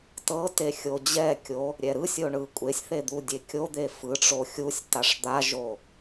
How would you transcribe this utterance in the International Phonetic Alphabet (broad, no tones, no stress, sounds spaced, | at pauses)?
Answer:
t ɤ t e xʲ o d͡ʑ ɛ kʲ o | ɾʲ ɛ ɾ ɯ sʲ o ɳ ɯ kʷʼ e sʲ θ e d̪ u dʲ e kʲ o d̪ e f ɯ ʈ͡ʂ o xʲ u sʲ t a ʂ d̪ a ʒ o